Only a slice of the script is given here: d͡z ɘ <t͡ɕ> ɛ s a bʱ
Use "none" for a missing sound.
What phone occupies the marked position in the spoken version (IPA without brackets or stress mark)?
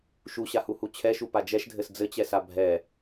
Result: t͡ɕ